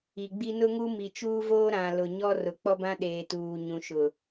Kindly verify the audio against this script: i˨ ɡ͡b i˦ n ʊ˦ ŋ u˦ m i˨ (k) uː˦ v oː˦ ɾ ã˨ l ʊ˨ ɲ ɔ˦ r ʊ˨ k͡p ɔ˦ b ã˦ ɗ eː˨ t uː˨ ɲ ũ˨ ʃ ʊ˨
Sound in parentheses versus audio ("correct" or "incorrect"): incorrect